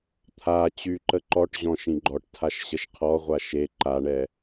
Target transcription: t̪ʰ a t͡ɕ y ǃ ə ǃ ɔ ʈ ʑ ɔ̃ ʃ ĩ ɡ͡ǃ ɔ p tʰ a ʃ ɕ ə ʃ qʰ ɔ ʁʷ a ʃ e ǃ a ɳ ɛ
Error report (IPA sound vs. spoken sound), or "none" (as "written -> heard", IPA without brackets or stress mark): p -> ʈ